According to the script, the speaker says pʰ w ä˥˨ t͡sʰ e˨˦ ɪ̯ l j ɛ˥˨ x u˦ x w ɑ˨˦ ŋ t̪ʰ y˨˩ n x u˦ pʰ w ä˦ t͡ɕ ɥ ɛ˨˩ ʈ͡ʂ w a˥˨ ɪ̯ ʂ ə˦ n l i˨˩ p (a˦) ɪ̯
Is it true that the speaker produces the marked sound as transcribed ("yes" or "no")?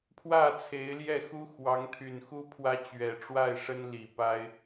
yes